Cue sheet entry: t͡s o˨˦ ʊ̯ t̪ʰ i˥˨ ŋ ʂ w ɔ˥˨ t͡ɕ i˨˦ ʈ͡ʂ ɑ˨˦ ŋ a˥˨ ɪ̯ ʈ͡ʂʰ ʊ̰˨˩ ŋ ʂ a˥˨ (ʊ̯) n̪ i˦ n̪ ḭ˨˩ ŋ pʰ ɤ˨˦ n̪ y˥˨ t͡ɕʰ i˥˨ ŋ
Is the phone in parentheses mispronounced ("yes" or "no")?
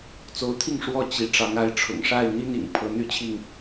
yes